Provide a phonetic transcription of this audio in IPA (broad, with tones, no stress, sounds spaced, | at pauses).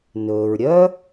n ɵː˩ ɹ ɾʲ œː˥